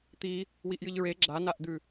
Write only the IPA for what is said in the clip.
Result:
t̪ i | w i ʔ j ɨ ʎ ɹ e ɡ͡ǁ a n a ʔ d̪ ʉ

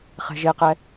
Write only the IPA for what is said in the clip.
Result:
χ ɛ̤ ʒ e q ɛ

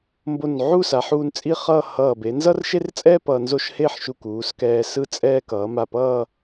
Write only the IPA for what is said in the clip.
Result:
m b o˧˩ n ʕ u˥˧ s a˩˧ ħ uː˧ n t͡sʼ i˥˧ χ ʌː˥˧ h ʌː˧˩ b e˩˧ n z ʌ˥ r ʃ e˥ r t͡sʼ ɛː˥ p ʌː˧ n z o˥ ʃ h e˥˧ ħ ʃ u˧˩ k uː˩˧ s k ɛː˧ s ɯ˥˧ t͡sʼ ɛː˥ k ʌː˩˧ m a˧˩ p ʌː˥˧

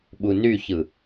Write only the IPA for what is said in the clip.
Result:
ɓ u n y ç ɯ

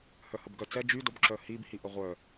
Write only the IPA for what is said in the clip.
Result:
h œ h ə b ɡ œ t͡s ɛ d͡ʒ y d o b ǁ œ h i b h i ʔ ə ʁʷ œ

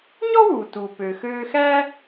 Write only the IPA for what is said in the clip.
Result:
ɲ ɔ˥ w uː˩ t uː˩ p ø˩ x øː˧ x æ˥

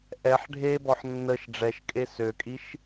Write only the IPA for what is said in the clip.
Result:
ʔ ɛ ħ ɖʱ e b ɔ ħ nː ə ʃ ɖ͡ʐ ɛ ʃ kʼ e s ø kʼ i ʃ

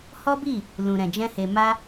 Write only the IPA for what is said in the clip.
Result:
h ɔ˦ b i˦˨ | l ũ˨ ɾ ɛ̃˨ d͡ʒ ɛ̃˧ h e˨ m a˧

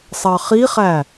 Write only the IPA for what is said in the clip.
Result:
sˤ ɑ χ i χ æ

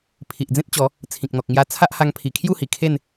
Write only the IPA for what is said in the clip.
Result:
pʰ i˨ ʔ d͡z ẽ˦ t̚ t͡ɕ ɔ˨˦ | t͡sʰ ĩ˨ k̚ n̪ ɔ˨ k̚ ŋ j a˦ t͡sʰ a˦ ʔ h a˧ ŋ pʰ i˨˩ kʰ j u˥˧ h i˨˩ kʰ e˥˧ n

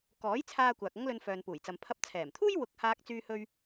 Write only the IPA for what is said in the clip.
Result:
k ɔː˨˥ j t͡sʰ aː˧ kʷ aː˨ k̚ ɐ˥ ŋ l ɵ˧ n f œː˨ n p uː˨˩ j t͡s ɐ˨ m pʰ ɐ˨˥ p̚ t͡sʰ ɛː˨˩ m t̪ʰ uː˥ j w ʊ˨˥ k̚ h aː˧ k̚ t͡s yː˧ h ɵ˧ ɥ

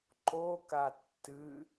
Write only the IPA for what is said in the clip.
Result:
ǃ o k a tː ɨ

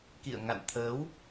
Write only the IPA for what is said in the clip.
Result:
k ḭ˧˨ ə̯ ŋ a̰˧˨ n t̪ʰ əː˨˦ w

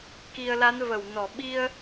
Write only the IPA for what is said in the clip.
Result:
k i˨˩ ə̯ l a˨˦ n v ə˧˩ w n ɔ˧˩ ɓ i˧ ə̯

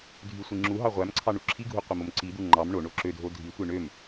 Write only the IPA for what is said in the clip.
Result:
dʱ y sʷ i ŋ͡ǁ u ɦ ɑ ʁʷ æ m ǀʰ ɑ ɳ u ǁʰ i ɡʱ u qʷ e m o m ǀ i d̪ u ŋ͡ǃ ɑ m ɳ o ɳ o ǁ ø dʱ o dʱ i tʷ e ɳ ø m

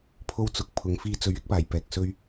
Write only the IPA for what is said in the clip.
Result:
pʰ o˥ w t͡s ʊ˨ k̚ pʰ ʊ˨ ŋ f iː˧ t͡s ɵ˨˥ ɥ ɪ˥ k̚ p aː˨˩ j p ɛː˨ k̚ s ɵ˥ ɥ

